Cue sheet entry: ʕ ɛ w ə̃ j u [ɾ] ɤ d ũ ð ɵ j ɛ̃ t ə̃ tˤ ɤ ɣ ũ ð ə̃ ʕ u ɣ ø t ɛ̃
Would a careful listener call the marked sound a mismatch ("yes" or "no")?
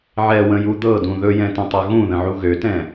yes